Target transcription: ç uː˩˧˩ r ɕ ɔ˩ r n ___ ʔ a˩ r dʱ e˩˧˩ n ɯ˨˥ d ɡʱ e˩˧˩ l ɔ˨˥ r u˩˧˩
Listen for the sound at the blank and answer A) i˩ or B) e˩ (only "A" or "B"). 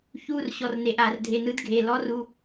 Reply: B